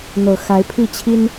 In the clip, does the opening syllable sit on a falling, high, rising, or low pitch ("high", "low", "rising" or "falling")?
low